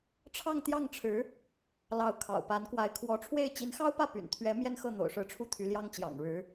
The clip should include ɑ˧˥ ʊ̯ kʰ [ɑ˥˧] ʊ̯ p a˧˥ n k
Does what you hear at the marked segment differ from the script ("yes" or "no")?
yes